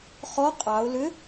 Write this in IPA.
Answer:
χ ɔ qʼ ɑ ʊ̯ l ʏ

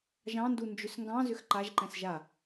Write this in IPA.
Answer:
ʒ ɑ̃ n d u n d͡ʒ ʏ s ŋ ɡ ɑ̃ z ʏ x ǃ a ʒ ǃ ɛ̃ s ʒ a

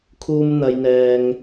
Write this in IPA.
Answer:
kʰ uː˧ m n̪ ɐ˧ j n̪ ɛː˧ ŋ

